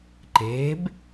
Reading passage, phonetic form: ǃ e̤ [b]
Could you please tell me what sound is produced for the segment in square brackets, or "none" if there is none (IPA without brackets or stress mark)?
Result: b